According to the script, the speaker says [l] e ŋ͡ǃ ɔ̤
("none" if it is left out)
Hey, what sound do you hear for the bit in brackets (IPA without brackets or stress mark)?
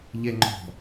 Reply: ʎ